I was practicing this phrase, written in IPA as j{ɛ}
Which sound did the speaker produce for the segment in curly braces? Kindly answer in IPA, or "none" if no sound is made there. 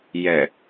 ɛ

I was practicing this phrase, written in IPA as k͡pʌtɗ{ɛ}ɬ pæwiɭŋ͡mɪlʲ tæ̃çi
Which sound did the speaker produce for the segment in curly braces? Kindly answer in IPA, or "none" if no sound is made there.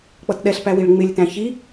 ɛ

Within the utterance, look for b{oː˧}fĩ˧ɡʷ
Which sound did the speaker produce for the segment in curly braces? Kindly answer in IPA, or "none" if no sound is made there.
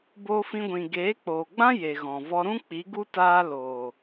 oː˧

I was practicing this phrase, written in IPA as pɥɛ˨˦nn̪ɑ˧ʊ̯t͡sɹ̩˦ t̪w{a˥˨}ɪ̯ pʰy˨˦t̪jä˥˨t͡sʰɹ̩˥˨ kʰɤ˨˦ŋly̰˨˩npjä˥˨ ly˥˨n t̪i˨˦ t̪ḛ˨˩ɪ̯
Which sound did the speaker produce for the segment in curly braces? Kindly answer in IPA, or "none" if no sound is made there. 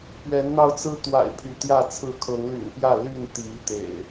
a̰˨˩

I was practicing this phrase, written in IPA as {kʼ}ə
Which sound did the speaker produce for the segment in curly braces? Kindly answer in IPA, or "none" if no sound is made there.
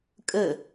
kʼ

